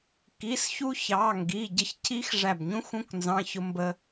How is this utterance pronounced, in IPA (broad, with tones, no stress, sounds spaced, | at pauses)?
k i˩˧˩ s ç u˦˥ ç ɑ˩˧˩ ŋ ɡ i˩˧˩ ɟ ə˧˩ ç cʰ i˦˥ x ʐ æ˧˩ b ɲ ũ˦˥ x ũ˦˥ k n z ɑ̃˧˥˧ ç ʊ˦˥ m b ə˦˥